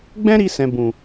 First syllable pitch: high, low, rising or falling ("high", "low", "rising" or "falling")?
high